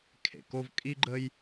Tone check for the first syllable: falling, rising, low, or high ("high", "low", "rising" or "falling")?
low